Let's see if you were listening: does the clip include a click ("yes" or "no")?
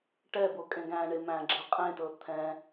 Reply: yes